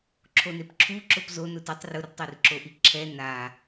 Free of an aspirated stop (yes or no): no